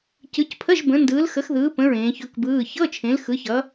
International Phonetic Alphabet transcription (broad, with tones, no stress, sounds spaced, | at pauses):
c ɯ˨˦ c pʰ ə˧˥˧ ʒ b ə̃˨˦ n d ɯː˨˦ l x ə˨˦ x ð ɯː˨˦ p ə̃˧˥˧ ɹ ẽː˨˦ ç ɵ˧˥˧ k b ɯː˧˥˧ ç ɤ˧˥˧ t͡ʃʰ ẽ˨˦ l x ɯ˨˦ ç ʌ˨˦